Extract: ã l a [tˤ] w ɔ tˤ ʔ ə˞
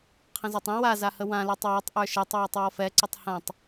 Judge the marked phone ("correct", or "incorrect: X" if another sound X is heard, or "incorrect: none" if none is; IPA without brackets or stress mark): correct